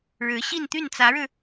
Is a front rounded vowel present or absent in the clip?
present